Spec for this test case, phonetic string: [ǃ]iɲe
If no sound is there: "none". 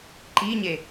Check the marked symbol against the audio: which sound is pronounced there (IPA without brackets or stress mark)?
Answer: ǃ